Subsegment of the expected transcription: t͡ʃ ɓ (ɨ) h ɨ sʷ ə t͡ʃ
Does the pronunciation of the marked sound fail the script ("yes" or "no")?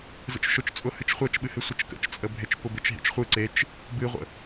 no